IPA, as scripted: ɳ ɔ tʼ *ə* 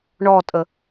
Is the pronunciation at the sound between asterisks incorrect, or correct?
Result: correct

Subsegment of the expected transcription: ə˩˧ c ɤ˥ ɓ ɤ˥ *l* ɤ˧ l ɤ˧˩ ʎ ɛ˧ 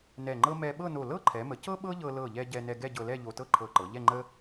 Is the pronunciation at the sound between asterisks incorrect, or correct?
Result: incorrect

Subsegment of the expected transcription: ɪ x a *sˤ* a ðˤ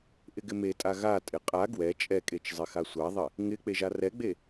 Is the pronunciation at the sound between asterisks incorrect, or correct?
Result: incorrect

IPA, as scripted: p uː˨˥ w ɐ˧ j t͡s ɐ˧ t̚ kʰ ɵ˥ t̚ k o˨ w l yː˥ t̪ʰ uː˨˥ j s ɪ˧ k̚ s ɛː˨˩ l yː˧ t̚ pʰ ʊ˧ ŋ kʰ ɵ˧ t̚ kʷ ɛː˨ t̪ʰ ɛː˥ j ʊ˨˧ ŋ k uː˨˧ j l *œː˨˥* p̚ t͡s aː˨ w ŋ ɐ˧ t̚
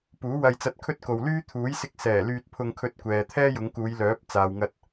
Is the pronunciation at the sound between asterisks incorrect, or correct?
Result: correct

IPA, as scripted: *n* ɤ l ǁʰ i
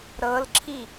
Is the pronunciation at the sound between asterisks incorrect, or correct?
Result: incorrect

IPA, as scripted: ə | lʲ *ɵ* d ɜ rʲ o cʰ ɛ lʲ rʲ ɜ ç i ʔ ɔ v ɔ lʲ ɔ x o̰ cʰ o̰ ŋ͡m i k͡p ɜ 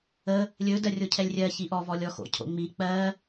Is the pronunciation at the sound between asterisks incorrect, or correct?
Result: correct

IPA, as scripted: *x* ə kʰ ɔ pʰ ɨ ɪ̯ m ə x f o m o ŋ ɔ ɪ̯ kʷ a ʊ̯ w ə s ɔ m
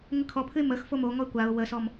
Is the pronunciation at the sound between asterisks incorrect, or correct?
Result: incorrect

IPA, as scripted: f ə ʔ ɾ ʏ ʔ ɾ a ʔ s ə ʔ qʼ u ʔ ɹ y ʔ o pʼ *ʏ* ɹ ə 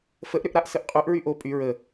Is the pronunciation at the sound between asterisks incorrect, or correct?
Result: incorrect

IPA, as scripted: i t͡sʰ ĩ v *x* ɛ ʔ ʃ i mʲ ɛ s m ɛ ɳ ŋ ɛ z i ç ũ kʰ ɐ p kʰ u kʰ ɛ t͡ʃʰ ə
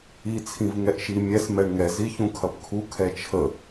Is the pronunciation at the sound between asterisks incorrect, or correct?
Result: incorrect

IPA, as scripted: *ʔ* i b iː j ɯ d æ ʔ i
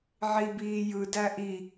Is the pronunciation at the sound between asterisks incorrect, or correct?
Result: incorrect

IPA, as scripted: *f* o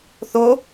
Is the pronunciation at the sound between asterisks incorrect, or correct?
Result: incorrect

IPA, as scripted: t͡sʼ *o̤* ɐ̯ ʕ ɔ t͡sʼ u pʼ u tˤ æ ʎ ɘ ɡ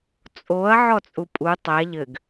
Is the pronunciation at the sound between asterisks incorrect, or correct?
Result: incorrect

